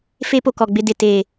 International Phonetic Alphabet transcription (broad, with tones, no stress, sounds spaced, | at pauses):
f e˦ p o˨ k ɔ˨ ɡ͡b ɪ˦˨ d ɪ˨ t eː˨